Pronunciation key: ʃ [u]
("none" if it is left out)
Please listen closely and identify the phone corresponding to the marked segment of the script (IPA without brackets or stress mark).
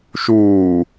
uː